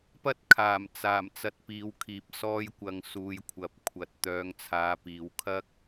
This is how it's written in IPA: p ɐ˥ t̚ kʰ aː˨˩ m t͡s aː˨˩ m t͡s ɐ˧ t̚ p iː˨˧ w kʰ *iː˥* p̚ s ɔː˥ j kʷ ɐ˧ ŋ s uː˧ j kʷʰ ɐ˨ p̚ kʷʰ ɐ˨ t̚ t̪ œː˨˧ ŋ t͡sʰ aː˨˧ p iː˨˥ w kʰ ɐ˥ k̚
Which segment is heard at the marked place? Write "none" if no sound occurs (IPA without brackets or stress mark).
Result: iː˨